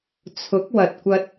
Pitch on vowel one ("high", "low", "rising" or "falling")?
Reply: rising